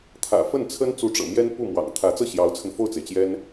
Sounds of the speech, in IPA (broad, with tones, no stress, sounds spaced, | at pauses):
t̪ʰ ä̰˨˩ f ə˥˩ n t͡sʰ ə˥ n t͡s u˧˥ ʈ͡ʂ ɤ̰˨˩ m j ɛ˥ n p u˥˩ m w ɑ̰˨˩ ŋ t̪ʰ ä˧˥ t͡s ɤ˥˩ ɕ j ɑ˧˥ ʊ̯ t͡sʰ ə˧ n f o˥˩ ʊ̯ t͡s e˩ ɪ̯ t͡ɕ j ɛ˥ n